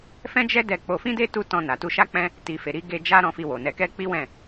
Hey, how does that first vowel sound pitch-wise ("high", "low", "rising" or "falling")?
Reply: high